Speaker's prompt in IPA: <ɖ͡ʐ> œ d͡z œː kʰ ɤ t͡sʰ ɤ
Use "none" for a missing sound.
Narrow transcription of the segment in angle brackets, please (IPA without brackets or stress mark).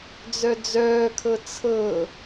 d͡z